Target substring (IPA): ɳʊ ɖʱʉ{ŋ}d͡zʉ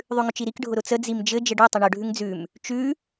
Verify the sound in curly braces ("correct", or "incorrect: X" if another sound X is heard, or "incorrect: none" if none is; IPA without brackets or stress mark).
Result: correct